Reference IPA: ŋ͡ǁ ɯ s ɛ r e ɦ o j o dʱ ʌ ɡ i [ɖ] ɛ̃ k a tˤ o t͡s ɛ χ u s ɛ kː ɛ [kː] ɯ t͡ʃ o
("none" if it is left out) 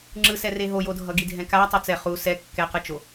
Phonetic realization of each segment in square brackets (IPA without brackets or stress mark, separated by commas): dʱ, q